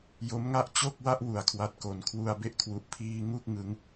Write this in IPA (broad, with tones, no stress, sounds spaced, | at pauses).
j o˦˥ m ŋ a˥˩ ʔ t͡ɕ o˥˩ k̚ w a˥˩ ʔ w u˨˩ a̯ kʰ w a˦˥ t̚ k o˩˦ n kʰ w u˧ a̯ b e˦˥ ʔ kʰ w u˨˩ ʔ pʰ iː˧ ŋ u˥˩ k̚ ŋ ɯ˦˥ ŋ